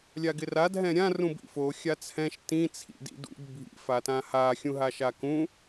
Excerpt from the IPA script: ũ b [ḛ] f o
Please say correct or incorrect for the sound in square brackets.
incorrect